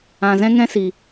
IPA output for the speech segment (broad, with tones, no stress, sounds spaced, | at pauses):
ã˧ z ɛ̃˦ ŋ ɛ̃˦ s i˧